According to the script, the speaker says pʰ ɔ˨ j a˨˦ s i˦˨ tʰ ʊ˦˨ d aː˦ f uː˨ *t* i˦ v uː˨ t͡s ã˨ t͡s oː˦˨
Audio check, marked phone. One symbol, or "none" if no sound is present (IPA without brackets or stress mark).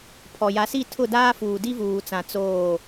d